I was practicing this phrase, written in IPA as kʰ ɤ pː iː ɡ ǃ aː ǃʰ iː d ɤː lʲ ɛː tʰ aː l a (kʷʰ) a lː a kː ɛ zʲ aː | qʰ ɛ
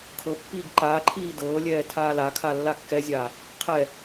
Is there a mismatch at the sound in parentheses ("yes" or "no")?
yes